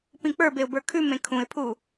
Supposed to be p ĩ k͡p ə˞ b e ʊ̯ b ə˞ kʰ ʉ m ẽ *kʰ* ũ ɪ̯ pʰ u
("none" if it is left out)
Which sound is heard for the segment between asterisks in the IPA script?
kʰ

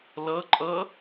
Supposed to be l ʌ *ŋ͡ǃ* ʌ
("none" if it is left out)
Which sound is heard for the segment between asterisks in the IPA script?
ǃʼ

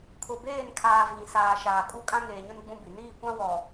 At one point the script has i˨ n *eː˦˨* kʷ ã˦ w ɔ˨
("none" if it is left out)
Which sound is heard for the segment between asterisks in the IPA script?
iː˦˨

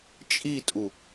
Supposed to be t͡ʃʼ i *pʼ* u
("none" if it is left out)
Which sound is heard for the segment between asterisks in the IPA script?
tʼ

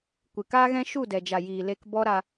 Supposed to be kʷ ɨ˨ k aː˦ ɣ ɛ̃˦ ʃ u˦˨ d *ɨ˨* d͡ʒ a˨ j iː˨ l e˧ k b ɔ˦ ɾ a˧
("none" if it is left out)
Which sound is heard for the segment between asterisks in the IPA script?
ɛ˨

